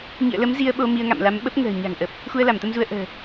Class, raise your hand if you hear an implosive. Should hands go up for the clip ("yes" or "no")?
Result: yes